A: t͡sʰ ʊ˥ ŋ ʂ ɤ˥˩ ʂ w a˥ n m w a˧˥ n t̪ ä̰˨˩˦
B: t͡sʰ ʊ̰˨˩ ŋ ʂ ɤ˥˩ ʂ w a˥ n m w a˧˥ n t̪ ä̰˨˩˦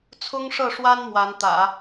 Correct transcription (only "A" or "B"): A